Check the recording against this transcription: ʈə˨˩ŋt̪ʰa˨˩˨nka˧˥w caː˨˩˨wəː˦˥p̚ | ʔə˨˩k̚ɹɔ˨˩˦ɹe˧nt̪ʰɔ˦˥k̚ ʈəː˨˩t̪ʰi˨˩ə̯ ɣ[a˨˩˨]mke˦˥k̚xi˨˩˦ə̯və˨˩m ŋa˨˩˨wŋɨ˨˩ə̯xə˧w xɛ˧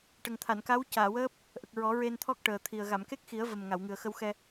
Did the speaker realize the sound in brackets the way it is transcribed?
yes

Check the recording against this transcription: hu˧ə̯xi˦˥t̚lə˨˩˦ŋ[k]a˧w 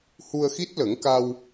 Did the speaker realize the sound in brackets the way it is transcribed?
yes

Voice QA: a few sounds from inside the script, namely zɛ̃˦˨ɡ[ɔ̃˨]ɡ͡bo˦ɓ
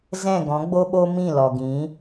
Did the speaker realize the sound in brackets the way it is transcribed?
no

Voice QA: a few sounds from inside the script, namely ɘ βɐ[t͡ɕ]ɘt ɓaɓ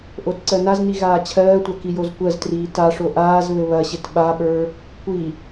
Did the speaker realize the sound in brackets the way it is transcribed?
no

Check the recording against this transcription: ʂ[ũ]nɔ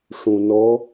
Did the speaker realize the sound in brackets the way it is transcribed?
yes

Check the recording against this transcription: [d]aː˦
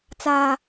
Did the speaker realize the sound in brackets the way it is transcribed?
no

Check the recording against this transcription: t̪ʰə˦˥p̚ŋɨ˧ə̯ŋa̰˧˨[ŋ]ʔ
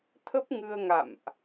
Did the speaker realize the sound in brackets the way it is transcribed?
no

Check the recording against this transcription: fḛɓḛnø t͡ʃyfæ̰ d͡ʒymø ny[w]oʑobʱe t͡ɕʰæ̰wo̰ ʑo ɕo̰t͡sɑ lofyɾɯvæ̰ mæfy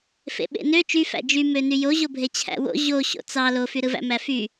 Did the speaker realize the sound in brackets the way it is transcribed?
no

